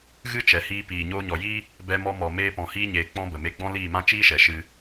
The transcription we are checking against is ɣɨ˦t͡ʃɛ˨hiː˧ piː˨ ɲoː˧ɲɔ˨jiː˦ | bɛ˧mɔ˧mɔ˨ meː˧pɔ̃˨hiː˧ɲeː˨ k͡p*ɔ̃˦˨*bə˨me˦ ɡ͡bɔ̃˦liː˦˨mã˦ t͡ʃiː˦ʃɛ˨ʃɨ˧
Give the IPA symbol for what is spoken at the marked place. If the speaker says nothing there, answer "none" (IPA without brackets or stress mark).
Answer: ɔ̃˦